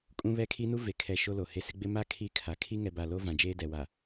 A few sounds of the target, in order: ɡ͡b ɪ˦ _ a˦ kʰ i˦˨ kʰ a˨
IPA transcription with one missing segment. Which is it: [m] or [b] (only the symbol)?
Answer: m